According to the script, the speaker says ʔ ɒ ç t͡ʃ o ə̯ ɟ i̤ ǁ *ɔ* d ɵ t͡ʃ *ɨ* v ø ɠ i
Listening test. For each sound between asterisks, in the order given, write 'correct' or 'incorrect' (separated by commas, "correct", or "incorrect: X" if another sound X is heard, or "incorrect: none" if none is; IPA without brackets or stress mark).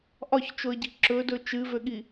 incorrect: ɵ, correct